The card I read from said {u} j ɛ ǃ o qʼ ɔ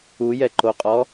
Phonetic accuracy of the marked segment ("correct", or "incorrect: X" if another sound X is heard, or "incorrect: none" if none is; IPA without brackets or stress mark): correct